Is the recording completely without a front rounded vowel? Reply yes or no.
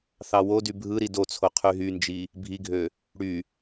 no